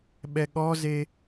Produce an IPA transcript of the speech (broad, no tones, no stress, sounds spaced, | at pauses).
ɓ ɛ ɠ ɔ z e